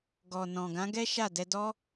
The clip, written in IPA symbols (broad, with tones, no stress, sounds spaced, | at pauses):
ɡ ɔ˨ n ɔ̃˨ ɡ ã˨˦ ɡ ɛ˦ ʃ a˦˨ d ɛ˧ d ɔ˦